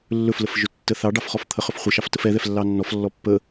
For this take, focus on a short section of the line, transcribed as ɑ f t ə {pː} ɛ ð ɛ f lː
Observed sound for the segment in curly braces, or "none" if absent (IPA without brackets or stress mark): f